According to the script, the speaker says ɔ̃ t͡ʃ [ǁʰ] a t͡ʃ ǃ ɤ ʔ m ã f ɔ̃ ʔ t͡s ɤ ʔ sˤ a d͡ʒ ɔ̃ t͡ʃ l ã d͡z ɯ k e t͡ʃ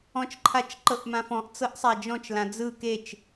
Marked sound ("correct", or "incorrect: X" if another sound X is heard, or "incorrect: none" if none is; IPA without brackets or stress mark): incorrect: ǃʰ